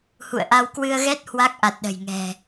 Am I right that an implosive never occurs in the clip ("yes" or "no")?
no